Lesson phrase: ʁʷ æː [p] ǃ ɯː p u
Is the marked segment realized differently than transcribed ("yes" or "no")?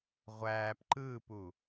no